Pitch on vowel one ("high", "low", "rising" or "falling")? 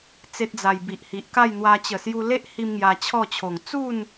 high